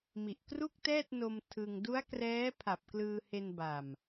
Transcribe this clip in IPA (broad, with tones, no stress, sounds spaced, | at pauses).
m i˨˩ ʔ k r u˥˩ k̚ t ɛː˥˩ t̚ n o˧ m tʰ ɯ˧ ŋ d u˦˥ a̯ k r ɛː˦˥ pʰ a˨˩ p̚ k l ɯː˧ h e˧ n b a˨˩ m